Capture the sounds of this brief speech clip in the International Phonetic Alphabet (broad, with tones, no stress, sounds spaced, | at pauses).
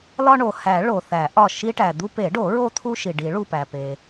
l ɒ˦ ɳ o˩ h æ˨˩˦ ɭ o˩ θ æ˨˩˦ ʔ ɒ˧˩ ʃ i˦ ʈ æ˩ d̪ u˦ p e˨˩˦ ɖ o˨˩˦ ɹ o˦ t̪ʰ u˦ ʃ i˩ ɖ i˨˩˦ ɭ u˧˩ p æ˩ p e˩